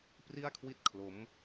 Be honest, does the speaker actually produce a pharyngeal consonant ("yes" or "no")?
no